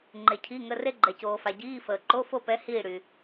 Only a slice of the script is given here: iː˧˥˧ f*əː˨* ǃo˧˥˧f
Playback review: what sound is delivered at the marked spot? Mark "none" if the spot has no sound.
əː˨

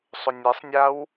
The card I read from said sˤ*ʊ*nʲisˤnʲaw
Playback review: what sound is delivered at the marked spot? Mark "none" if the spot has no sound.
ʊ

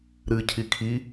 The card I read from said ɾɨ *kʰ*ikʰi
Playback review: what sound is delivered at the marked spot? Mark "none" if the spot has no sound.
cʰ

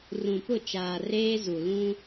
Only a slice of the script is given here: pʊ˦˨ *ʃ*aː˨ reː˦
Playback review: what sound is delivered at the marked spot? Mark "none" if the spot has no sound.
t͡ʃ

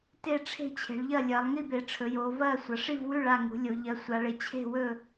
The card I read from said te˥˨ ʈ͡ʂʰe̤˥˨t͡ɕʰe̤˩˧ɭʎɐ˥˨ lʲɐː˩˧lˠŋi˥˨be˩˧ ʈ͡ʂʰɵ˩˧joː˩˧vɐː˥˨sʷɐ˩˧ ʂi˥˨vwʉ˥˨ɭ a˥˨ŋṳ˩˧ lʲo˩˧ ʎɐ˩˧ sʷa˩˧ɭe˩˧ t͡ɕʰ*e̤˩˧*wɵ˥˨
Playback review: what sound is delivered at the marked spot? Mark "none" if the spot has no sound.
e̤˥˨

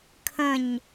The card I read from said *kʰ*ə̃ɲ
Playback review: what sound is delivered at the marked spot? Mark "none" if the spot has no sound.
kʰ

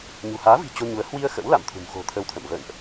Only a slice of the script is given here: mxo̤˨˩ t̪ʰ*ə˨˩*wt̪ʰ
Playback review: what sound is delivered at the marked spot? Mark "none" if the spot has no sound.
ə˧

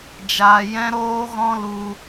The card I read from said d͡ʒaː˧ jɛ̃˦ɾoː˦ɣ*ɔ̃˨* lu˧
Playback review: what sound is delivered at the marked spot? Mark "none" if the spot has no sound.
ɔ̃˦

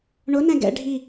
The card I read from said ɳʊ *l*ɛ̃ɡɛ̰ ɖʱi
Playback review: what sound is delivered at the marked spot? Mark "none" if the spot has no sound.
n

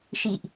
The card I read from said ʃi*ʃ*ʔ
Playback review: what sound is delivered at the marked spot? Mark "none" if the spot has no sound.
none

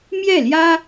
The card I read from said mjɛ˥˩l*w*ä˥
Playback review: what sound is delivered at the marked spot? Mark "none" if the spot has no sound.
j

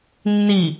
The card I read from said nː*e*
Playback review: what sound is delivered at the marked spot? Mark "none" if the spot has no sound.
i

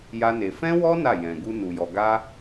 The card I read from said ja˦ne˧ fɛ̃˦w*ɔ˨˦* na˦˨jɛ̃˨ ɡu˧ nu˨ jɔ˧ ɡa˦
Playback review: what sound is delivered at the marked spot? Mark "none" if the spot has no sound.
ɔ˦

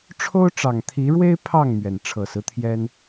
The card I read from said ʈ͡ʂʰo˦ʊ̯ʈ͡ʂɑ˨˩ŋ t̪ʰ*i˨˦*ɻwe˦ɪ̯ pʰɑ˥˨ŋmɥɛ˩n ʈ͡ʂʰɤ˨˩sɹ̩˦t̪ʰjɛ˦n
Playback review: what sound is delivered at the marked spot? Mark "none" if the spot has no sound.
i˨˦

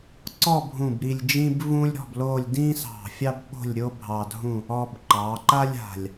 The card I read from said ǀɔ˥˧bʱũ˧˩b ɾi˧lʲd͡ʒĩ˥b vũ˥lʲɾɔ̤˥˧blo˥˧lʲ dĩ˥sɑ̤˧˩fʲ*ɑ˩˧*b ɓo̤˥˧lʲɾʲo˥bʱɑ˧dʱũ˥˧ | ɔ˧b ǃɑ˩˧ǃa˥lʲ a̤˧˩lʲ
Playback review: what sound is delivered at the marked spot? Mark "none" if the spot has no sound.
ɑ˥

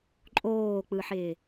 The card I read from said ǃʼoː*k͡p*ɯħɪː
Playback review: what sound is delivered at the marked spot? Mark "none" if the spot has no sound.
k͡p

